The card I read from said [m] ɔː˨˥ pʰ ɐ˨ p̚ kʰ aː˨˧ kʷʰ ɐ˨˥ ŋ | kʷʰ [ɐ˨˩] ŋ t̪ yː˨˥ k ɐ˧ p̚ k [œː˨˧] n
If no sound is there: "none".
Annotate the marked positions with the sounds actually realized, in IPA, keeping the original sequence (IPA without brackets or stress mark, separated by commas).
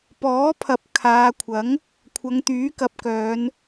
p, ɐ˨˧, œː˨˧